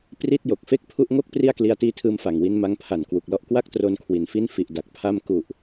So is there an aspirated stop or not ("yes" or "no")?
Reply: yes